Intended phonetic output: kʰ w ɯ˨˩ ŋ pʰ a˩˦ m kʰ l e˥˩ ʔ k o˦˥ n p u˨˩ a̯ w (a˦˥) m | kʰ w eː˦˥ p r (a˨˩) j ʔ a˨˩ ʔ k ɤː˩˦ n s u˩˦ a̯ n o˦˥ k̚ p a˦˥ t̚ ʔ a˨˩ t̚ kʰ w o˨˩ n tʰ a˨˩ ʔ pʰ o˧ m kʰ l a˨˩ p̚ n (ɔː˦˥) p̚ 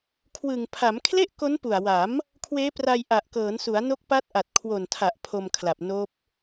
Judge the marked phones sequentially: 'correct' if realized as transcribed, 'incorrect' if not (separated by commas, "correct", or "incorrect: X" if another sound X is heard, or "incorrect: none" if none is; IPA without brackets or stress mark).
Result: incorrect: a˩˦, incorrect: a˧, incorrect: oː˦˥